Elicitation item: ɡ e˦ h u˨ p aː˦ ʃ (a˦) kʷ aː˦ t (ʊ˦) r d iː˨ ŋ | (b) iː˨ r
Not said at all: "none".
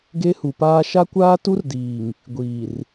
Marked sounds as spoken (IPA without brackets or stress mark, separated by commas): a˦, u˦, ɡʷ